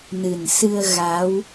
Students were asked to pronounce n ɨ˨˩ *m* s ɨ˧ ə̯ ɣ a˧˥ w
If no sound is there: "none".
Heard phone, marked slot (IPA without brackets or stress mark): n